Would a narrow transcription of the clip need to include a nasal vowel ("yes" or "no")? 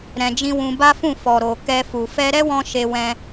yes